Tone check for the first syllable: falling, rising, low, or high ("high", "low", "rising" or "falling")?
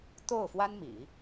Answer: falling